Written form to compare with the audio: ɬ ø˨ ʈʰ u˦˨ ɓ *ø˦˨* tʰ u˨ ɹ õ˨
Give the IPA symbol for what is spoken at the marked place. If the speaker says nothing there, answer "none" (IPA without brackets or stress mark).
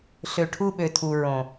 ø˨